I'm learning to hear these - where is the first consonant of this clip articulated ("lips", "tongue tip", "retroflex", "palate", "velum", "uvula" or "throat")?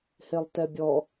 throat